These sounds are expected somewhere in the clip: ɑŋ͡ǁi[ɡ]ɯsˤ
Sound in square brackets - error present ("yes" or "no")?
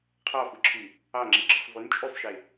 yes